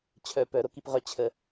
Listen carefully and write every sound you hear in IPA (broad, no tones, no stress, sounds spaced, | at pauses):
t͡ɕʰ œ p œ ɾ o k i p ʁ œ t͡ɕʰ ə